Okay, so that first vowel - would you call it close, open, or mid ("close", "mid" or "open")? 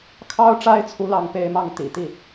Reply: open